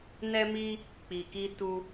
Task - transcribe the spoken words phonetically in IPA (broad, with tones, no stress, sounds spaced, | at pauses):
n ɛ˦ m i˦ | k͡p i˧ k i˦ t u˦